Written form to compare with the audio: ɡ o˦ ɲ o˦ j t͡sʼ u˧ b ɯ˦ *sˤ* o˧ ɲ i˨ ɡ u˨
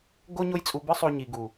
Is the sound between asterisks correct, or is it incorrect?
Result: correct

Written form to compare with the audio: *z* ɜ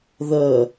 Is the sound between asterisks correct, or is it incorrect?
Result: incorrect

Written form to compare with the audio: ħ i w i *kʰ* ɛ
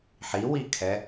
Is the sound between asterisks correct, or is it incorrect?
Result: correct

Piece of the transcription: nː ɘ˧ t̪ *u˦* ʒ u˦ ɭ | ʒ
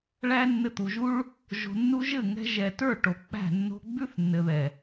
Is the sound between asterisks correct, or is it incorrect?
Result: incorrect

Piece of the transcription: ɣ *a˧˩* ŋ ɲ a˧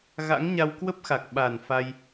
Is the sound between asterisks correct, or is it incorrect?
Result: incorrect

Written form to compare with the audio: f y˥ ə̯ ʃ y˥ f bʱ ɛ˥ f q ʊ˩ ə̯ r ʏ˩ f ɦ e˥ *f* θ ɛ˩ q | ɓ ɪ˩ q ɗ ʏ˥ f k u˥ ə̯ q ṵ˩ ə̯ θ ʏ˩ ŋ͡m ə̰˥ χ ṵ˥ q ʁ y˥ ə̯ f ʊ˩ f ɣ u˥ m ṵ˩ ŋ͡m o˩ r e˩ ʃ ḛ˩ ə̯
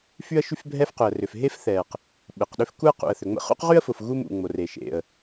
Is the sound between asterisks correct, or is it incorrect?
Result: correct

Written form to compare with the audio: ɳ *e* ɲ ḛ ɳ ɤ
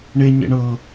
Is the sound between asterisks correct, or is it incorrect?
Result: correct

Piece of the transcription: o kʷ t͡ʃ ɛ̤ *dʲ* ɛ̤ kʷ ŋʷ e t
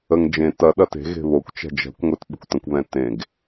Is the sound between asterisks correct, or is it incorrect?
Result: incorrect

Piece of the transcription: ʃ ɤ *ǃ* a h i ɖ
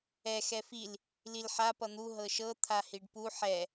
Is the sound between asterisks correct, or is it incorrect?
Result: incorrect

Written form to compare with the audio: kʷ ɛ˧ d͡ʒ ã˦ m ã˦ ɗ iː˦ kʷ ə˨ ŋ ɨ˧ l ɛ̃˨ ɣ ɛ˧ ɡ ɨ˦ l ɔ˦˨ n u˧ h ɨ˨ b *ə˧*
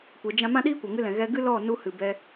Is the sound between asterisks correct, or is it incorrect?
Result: incorrect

